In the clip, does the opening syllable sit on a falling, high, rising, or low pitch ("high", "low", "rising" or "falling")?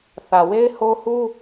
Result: low